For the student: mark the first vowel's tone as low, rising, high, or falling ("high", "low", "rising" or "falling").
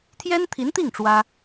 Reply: high